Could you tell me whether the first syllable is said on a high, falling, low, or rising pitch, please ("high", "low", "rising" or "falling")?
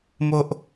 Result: low